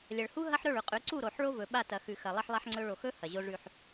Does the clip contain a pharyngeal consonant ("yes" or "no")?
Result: yes